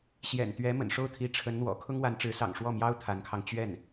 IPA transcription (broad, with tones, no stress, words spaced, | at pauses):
ɕjɛ̰˨˩nt̪ɥɛ˧˥ mə̰˨˩nʂo˥˩ʊ̯t̪ʰi˧˥ ʈ͡ʂʰə˧˥nn̪wɔ̰˨˩ kʰʊ˥ŋwa˧˥nʈ͡ʂɻ̩˧˥sɑ̰˨˩ŋ ʂwɔ˥˩mjɑ˥ʊ̯ t̪ʰa˧˥nkʰɑ˧ŋ t͡ɕɥɛ˥˩n